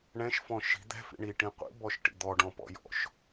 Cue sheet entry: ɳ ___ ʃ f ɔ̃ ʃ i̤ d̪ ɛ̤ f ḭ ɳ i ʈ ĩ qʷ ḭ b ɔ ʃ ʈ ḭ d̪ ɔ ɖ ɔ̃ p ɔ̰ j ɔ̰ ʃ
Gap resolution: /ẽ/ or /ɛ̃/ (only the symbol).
ɛ̃